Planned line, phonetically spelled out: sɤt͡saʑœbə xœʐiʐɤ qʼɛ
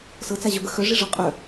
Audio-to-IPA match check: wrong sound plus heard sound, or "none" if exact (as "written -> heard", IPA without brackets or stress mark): ɛ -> œ